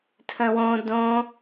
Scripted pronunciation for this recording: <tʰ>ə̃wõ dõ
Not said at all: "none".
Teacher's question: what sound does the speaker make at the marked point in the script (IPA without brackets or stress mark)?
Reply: tʰ